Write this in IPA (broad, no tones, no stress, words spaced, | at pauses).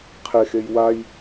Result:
qʰexej waj